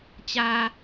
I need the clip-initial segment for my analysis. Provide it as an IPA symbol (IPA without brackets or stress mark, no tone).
t͡ɕ